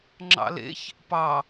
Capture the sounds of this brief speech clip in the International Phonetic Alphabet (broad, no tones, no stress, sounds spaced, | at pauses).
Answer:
ŋ͡ǁ ɑ̰ l ḛ ç | p ɑ